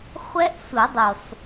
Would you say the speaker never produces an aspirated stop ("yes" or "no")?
yes